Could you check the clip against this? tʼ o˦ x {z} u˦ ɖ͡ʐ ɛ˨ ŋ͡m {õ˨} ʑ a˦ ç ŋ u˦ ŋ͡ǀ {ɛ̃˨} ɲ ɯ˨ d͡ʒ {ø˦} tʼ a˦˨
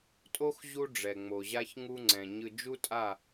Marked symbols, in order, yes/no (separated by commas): no, no, yes, no